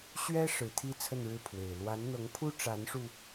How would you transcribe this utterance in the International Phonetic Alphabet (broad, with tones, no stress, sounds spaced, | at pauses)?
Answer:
ɕ ɥ ɛ˥ ʂ ɻ̩˧˥ t̪ʰ i˥ t͡sʰ ə˥˧ n ɻ ɻ̩˥˩ pʰ w e˨˩ ɪ̯ l w a˧˥ n n̪ ɤ˧˥ ŋ pʰ u˥ ʈ͡ʂ a˧˥ n ʂ u˧